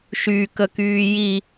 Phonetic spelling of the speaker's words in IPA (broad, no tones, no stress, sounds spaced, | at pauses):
ʃ y k ə k yː j i